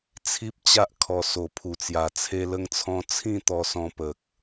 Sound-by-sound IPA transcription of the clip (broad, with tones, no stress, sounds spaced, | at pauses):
t͡sʰ i˦ p̚ t͡ɕ a˦ ʔ kʰ ɔ˨˩ s o˨˩ pʰ u˨˩ t͡s j a˨˩ t͡sʰ e˧ l ə˧ ŋ t͡sʰ ɔ̃˧ t͡sʰ ĩ˥˧ t̪ ɔ˧ s ɔ̃˧ p ə˨ k̚